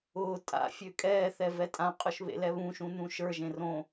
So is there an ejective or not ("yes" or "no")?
yes